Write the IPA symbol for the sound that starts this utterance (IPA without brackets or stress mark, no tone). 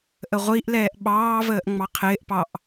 ʔ